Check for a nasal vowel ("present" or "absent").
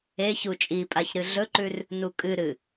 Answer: absent